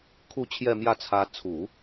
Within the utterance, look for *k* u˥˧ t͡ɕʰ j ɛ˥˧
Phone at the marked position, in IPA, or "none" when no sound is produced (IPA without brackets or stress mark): kʰ